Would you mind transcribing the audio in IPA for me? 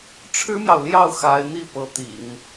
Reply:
ʈ͡ʂʰ ɻ̩˥ m j ɑ˨ ʊ̯ l j ɑ˥˩ ʊ̯ x a˧˥ ɪ̯ n̪ i˥˩ p ɤ˧˥ t̪ ḭ˨˩˦ ŋ

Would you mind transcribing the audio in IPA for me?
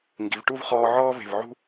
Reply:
ŋ ɡ i˩˧ v ʈ u˥˧ v χ ɔː˧ ʕ ɔː˥ v e̤˧˩ v ʕ ṳ˥˧

